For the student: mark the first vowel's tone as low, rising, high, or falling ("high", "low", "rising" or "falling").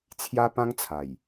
high